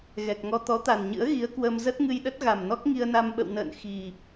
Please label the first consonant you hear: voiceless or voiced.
voiced